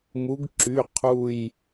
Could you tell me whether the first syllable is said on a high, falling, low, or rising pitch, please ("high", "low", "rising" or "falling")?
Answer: rising